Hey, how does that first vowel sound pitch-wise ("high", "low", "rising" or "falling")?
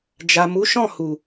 low